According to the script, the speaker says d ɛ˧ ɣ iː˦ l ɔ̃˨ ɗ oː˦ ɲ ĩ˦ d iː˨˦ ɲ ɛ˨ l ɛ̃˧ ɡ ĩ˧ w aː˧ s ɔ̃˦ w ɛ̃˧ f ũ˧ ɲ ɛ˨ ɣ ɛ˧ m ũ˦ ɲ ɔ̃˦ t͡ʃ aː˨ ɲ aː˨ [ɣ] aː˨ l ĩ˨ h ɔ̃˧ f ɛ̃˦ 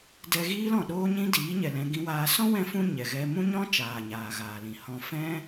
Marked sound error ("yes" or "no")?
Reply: no